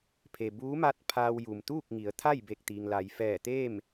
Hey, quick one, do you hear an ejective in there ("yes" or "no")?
no